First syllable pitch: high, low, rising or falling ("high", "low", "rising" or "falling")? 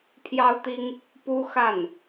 high